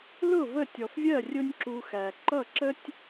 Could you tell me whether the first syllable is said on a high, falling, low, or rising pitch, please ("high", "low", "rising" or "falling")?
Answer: falling